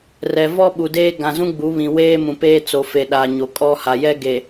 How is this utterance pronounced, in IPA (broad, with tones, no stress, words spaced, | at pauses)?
rɛ˨vɔ˦ɓu˨ deː˦ ɡã˨zũ˦ ɡ͡bu˨˦βĩ˨ weː˦mũ˨ peː˦t͡so˨ fe˨ɗa˨ ɲo˨kʼɔ˦ ha˨jɛ˦ɡe˨